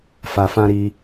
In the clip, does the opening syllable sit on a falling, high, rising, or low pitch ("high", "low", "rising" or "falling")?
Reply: low